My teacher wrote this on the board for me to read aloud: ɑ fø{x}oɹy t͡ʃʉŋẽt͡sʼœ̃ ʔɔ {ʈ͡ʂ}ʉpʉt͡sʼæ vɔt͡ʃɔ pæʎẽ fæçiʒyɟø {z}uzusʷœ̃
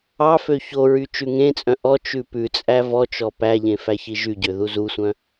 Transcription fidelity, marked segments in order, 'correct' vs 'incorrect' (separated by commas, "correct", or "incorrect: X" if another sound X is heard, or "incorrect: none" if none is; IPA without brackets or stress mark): incorrect: ç, incorrect: t͡ʃ, incorrect: ð